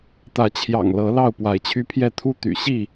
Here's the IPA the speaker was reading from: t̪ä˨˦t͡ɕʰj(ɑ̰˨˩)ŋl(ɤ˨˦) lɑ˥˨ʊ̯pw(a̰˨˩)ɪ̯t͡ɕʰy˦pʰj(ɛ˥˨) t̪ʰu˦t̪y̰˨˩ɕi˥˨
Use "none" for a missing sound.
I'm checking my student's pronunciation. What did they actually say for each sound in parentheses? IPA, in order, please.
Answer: ɑ̰˨˩, ɤ˨˦, a˨˦, ɛ˥˨

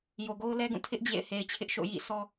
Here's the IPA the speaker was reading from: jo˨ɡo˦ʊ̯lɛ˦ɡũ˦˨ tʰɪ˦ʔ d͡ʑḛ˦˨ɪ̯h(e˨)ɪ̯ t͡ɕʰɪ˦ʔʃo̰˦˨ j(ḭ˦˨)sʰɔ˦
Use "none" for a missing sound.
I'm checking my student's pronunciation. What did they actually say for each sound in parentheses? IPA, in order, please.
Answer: e˨, ḭ˦˨

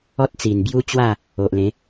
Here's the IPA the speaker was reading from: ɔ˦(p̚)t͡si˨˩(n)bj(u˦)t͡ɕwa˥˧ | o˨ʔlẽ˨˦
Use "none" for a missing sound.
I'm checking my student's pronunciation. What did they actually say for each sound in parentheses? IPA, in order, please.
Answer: t̚, n, u˦

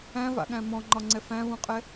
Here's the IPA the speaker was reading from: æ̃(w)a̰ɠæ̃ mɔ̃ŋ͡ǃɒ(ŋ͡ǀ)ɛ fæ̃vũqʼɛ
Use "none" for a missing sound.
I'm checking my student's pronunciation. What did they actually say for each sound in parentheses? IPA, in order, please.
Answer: v, ŋ͡ǀ

